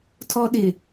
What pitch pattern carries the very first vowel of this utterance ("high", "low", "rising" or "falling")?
high